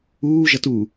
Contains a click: no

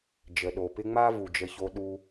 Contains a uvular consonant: no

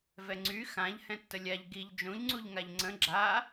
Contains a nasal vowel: yes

